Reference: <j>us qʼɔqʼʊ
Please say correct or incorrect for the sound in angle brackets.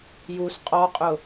correct